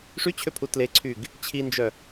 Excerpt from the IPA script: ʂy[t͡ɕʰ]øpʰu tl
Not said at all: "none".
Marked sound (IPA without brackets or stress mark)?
t͡ɕʰ